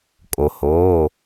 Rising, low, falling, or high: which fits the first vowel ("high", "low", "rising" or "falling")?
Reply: low